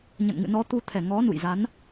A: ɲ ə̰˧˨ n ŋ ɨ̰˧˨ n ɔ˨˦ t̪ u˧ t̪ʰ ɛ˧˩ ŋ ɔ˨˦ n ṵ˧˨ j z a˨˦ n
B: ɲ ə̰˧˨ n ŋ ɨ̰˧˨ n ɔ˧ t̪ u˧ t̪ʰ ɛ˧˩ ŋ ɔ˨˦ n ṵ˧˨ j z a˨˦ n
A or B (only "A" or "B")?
A